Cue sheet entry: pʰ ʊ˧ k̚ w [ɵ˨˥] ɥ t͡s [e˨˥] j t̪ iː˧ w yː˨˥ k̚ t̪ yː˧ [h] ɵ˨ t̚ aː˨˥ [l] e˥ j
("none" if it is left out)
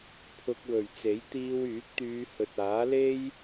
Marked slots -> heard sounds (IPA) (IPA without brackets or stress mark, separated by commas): ɵ˨, e˨˥, h, l